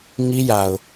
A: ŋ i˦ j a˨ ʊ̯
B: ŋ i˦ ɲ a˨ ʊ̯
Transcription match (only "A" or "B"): A